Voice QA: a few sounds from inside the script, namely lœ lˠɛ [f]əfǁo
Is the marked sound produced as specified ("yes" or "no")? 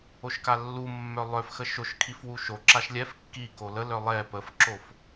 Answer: no